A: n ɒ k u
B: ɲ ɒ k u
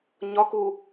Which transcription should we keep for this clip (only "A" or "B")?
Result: B